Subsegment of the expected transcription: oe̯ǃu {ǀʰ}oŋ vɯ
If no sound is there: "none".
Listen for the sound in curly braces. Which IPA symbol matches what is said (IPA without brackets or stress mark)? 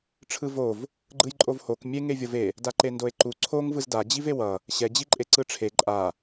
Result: ǀʰ